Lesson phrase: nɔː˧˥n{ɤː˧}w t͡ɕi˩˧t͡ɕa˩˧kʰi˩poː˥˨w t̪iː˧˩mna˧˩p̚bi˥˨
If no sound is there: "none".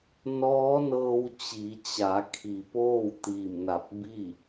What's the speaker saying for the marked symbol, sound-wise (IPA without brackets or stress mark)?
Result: ɤː˧